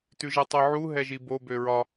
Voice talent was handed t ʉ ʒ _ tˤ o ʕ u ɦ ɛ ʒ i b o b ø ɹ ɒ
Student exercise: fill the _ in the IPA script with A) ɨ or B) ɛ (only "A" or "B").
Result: B